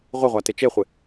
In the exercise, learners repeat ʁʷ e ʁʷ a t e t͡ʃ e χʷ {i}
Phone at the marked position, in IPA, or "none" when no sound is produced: ɪ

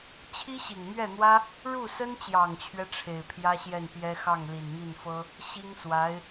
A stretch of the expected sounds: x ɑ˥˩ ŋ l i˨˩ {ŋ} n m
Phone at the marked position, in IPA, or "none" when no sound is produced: none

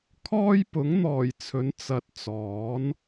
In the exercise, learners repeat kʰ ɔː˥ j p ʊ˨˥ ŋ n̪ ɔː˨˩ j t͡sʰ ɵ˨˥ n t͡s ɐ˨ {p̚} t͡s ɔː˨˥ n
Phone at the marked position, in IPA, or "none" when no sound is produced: t̚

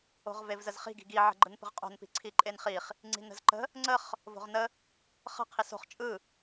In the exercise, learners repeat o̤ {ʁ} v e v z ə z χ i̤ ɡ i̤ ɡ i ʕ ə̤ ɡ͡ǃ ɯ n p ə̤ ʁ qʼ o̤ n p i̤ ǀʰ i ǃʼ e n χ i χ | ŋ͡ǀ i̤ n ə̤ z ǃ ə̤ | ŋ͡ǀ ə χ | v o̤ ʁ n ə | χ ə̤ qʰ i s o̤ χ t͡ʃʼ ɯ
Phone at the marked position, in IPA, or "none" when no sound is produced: ʁ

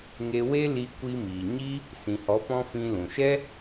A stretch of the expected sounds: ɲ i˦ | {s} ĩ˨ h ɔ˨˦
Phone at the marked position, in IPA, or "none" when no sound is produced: s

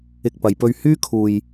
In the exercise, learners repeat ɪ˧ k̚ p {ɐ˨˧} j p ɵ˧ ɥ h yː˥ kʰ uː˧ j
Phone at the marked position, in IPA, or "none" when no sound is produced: ɐ˨˧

